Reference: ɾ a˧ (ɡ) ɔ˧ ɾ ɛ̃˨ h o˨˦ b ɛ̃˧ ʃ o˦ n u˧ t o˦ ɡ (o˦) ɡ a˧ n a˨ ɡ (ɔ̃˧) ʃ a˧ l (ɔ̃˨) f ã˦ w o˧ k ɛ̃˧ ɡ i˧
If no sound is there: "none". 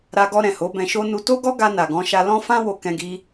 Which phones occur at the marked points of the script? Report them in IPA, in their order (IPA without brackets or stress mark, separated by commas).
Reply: ɡ, ɔ˦, ɔ̃˧, ɔ̃˦